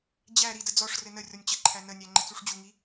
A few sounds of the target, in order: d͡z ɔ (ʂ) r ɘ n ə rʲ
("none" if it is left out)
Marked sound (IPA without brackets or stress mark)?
ʂ